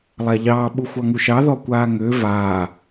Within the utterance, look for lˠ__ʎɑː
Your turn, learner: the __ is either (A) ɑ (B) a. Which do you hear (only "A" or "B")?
B